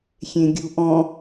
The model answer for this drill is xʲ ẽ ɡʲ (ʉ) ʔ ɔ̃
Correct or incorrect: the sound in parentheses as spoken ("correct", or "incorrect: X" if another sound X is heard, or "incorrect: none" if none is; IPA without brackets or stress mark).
incorrect: u